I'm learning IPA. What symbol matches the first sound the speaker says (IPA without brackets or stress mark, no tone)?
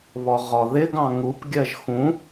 β